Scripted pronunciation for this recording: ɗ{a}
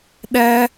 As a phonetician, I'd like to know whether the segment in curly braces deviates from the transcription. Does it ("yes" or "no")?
yes